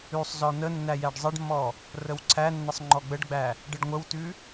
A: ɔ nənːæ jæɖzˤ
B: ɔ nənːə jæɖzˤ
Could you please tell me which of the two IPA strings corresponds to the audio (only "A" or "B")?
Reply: A